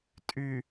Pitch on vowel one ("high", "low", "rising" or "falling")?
low